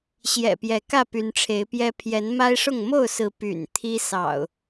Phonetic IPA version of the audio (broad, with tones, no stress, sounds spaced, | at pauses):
ɕ j ɛ̰˨˩ p j ɛ˨˦ k ä˥˨ p y˨˦ n ʈ͡ʂʰ e˨˦ ɪ̯ p j ɛ˦ pʰ j ɛ˨˦ n m a˦ ɪ̯ ʂ ʊ˥˨ ŋ m o˥˨ ʊ̯ s ɹ̩˨˦ p y̰˨˩ n t̪ʰ i˦ s ɑ̰˨˩ ʊ̯